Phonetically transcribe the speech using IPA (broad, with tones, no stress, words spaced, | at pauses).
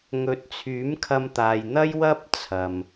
ŋɵ˨˥t̚t͡sʰyː˨˥mkʰɐ˧mt̪aː˨j n̪ɐ˥jwɐ˥p̚ t͡sʰɐ˨m